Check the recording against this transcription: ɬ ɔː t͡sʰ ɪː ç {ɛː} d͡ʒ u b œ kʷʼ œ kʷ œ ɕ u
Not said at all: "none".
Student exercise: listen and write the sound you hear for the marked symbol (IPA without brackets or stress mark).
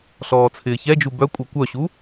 ɛ